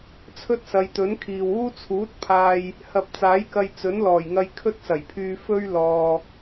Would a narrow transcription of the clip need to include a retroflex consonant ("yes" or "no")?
no